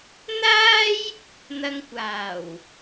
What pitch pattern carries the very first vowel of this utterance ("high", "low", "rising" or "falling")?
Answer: high